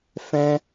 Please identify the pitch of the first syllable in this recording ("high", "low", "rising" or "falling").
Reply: high